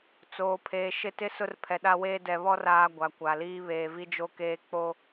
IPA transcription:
t͡s oː˨ pʰ eː˨ ʃ ɪ˦ t ɪ˦ s ʊ˦ r pʰ ɛ˨ ɗ a˦ w eː˦ d ɛ˨ β ɔ˦ r aː˦ ɡʷ a˨ kʷ a˨ l iː˦ β eː˨ v i˦ d͡ʒ o˦ k eː˦ k͡p o˦

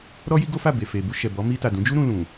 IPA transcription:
ɾ ɔ˦ j i˦ ɡ o˦ f a˦˨ b e˨ f e˨ b u˧ ʃ ɛ˨ b ɔ˨˦ m i˧ t a˨ d ũ˨˦ d͡ʒ u˦ ɾ ũ˧ l ũ˨

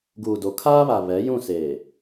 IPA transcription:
ɡ uː˨ d o˨ kʰ aː˦ β a˨ β ɛ˨˦ j ũ˦˨ s eː˨

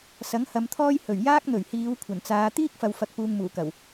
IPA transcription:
s ɐ˨˥ ŋ h ɐ˨˧ m t̪ʰ ɔː˥ j h ɵ˨˩ ɥ j aː˥ k̚ n̪ ɵ˨˩ ɥ h iː˨˧ w kʷʰ ɐ˨˩ n t͡s aː˨˧ t̪ iː˥ k̚ f ɐ˨ w f ɐ˨ k̚ p uː˧ ŋ m uː˨˩ k ɐ˨˩ w

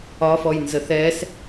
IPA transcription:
ɒ f ɔ j n z ə θ ɛ s

